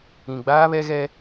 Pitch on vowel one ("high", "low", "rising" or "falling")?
low